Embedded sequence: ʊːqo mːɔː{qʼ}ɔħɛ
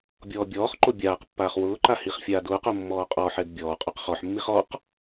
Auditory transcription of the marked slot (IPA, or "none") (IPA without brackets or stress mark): qʼ